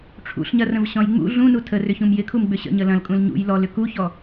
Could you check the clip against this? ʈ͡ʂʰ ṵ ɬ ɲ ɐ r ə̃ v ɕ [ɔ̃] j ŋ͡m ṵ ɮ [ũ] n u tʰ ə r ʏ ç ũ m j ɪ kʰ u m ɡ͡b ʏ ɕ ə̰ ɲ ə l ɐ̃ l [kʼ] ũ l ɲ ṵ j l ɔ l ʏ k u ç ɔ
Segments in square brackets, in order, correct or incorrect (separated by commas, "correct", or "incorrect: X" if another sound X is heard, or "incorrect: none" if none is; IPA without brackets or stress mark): correct, correct, correct